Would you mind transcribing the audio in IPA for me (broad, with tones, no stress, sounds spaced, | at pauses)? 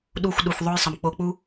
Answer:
ɗ u˧ xʷ ɗ u˨ xʷ ðˤ o˦ j sˤ ə˨ m k͡p o˧ k͡p u˦